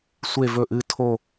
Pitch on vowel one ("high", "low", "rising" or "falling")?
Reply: falling